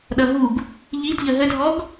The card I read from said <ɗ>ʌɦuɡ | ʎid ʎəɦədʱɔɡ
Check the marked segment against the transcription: correct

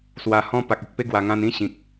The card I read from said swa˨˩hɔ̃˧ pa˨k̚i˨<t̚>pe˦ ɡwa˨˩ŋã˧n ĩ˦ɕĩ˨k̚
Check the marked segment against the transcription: incorrect: k̚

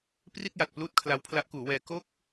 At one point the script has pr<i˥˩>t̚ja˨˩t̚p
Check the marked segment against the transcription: correct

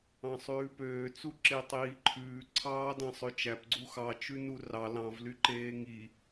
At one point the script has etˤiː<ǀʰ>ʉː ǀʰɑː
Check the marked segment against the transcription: incorrect: ǃʰ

